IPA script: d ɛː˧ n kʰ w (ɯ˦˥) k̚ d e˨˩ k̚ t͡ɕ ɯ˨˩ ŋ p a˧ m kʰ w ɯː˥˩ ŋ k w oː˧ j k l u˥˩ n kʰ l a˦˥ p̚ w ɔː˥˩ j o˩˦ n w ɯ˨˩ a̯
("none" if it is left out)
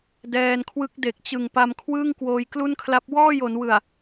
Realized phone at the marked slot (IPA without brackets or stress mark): ɯ˦˥